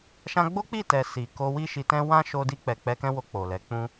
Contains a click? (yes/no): no